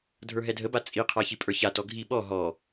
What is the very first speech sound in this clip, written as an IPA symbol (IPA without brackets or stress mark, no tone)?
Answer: dʱ